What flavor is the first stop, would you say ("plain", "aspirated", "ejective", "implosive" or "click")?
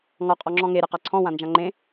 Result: ejective